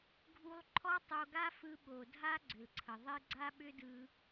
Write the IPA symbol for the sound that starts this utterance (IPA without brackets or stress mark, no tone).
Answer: ɡʱ